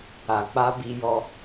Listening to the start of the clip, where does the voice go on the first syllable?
low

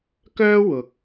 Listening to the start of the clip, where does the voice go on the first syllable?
high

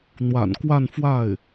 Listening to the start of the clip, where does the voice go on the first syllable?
low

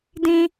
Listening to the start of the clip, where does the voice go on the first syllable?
high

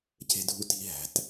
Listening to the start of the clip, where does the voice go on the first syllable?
high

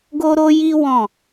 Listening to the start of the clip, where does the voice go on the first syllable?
high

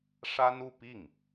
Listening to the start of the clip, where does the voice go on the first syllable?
high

